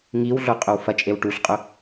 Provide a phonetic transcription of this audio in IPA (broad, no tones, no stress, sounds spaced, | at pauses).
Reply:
ŋ i w ɮ o qʼ ɵ w f ɐ t͡ʃʼ e w ʈ u ɬ qʼ ɵ